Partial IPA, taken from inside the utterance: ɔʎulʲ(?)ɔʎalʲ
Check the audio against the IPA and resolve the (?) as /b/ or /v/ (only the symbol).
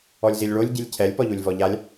v